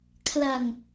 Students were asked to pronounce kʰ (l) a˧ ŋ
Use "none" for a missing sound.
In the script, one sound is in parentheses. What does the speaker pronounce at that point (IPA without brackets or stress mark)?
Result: l